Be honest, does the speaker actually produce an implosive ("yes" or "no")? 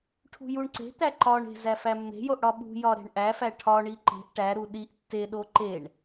yes